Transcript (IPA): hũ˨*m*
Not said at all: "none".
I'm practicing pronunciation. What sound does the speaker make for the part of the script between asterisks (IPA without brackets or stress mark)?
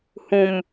m